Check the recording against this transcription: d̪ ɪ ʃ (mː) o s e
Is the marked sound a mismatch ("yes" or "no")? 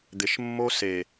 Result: no